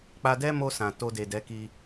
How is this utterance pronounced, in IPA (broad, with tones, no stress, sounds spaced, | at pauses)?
k͡p a˧ d ɛ˦ m o˧ s ã˨ t o˧ d e˨ d ɛ˨˦ k i˧